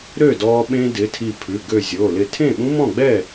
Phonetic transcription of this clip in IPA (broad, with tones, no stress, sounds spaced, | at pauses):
ɾ ø˥˩ d ɔ˧ ɓ ẽ˧ d ɪ˩˧˩ tʰ i˧˩ pʰ ʉ˩˧˩ ɡ ø˧˩ zʲ o˩˧˩ l ɪ˧˩ tʰ ẽ˥˩ ɓ ũ˦˥ m ɔ̃˥˩ ɡ͡b ɛ˥˩